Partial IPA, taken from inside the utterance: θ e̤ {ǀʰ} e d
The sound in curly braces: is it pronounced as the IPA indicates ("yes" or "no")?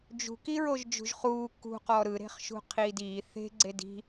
no